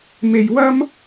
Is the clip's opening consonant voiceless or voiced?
voiced